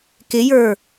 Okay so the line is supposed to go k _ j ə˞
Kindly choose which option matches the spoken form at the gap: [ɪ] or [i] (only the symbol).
ɪ